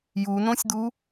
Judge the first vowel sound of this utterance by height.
high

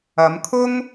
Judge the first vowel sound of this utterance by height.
low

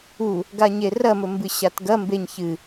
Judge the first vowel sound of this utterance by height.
high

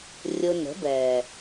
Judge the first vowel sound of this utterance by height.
high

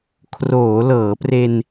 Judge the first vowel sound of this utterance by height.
mid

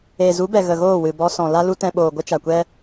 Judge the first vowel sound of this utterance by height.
mid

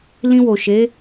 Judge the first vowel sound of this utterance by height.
high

